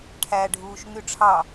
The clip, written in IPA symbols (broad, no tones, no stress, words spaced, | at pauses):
ʈʰæɖʱuːʃ ŋyʈ͡ʂʰɑ